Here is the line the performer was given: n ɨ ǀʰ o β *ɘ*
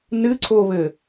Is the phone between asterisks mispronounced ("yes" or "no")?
no